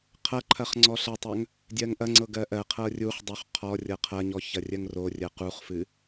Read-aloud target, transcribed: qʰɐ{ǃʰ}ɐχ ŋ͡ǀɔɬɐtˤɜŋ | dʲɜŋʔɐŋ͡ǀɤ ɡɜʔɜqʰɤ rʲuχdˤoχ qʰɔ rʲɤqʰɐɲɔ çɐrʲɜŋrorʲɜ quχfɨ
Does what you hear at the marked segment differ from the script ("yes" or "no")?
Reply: no